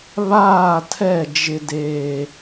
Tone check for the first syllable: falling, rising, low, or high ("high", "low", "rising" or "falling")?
falling